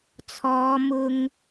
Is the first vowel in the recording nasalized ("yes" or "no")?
no